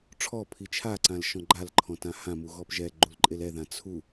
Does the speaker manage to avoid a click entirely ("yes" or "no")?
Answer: no